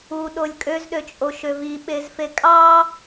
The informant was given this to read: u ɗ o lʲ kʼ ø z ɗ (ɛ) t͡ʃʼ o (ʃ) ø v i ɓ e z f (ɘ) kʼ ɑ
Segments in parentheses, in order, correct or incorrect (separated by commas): incorrect, correct, incorrect